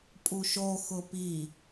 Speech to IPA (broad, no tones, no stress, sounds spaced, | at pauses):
pʼ u ʃ o x ʊ p i